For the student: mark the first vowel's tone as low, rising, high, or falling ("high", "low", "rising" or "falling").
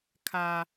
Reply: high